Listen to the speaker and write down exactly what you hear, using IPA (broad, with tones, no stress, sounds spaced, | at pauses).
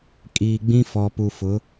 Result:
kʼ iː˨ ɡ͡b ĩ˦ f ɔ˨ p u˨ f ʊ˨˦